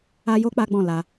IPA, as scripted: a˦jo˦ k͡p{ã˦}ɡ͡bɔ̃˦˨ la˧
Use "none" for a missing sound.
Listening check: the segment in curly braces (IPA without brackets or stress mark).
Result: a˦